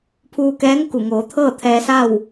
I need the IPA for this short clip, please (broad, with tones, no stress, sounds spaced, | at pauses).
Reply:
pʰ uː˧ k ɛː˧˥ ŋ k u˧˩ ŋ oː˩˧ t̪ʰ ɤː˥˨ t̪ʰ ɛː˧ s a˥˨ w